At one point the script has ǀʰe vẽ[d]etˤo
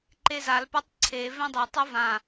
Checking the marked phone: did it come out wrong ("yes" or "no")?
yes